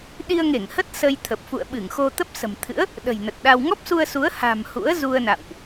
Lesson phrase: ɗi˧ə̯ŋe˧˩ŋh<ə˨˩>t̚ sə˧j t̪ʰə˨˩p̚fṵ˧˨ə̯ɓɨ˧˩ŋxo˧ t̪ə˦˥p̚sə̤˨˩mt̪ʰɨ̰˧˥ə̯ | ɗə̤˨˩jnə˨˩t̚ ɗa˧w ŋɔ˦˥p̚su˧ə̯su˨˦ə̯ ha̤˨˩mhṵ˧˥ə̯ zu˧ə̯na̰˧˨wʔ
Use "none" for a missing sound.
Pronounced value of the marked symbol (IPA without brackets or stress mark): ə˦˥